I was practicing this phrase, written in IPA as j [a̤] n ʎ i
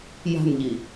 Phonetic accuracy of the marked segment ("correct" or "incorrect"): correct